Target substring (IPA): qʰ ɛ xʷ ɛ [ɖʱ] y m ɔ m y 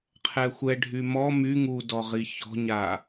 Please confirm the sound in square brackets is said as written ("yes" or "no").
yes